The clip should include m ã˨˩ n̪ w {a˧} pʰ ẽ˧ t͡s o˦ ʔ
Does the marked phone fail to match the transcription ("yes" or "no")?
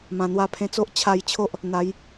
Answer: no